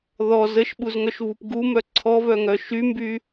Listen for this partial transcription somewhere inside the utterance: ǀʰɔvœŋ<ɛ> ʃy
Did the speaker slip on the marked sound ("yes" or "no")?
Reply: yes